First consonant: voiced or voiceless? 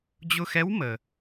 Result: voiced